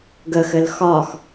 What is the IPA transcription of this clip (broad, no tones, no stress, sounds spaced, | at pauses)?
ɡ ə x ɘ l x ɒ x